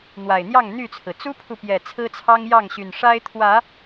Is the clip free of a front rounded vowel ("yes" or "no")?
no